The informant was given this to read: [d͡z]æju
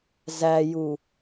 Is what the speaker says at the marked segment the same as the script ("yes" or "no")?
no